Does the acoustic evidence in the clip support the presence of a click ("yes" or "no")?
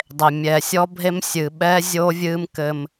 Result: no